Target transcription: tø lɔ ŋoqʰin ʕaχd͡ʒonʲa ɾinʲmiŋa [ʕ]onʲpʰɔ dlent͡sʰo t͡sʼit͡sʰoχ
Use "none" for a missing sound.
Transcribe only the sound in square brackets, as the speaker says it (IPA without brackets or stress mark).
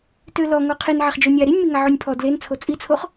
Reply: ʕ